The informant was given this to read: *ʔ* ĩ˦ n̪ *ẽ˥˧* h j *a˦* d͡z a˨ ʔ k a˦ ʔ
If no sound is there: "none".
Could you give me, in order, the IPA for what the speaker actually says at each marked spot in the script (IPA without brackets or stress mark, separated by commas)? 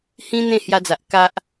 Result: h, ẽ˥˧, a˧